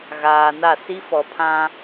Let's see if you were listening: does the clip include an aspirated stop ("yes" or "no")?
yes